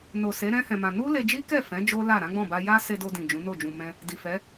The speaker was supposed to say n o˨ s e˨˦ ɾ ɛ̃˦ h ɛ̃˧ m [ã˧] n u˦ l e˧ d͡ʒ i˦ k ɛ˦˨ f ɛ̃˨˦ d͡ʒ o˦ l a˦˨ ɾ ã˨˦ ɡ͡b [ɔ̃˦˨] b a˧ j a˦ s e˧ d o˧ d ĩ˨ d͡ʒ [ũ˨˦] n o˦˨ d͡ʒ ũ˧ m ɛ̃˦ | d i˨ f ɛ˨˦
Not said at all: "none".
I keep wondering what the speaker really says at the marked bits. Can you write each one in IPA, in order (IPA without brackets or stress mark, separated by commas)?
ã˧, ɔ̃˦˨, ũ˨˦